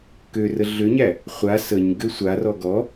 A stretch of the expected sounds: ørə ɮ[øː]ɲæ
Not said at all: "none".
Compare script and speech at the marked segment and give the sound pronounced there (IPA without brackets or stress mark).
ø